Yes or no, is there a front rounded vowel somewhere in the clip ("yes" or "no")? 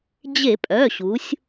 yes